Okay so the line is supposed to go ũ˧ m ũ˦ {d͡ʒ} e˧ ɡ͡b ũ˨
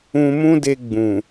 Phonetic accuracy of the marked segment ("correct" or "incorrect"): incorrect